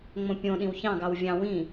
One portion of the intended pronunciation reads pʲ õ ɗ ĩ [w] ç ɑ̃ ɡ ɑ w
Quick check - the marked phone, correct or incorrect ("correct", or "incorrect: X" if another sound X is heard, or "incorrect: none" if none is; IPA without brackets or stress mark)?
correct